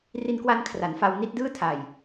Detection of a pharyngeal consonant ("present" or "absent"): absent